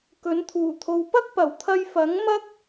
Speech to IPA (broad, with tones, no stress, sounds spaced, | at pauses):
k ɵ˨˥ n t̪ʰ uː˨˩ t̪ʰ o˨ w p ɐ˥ k̚ p ɐ˨˩ w t̪ʰ ɐ˧ j f ɐ˨˥ ŋ m ɐ˥ k̚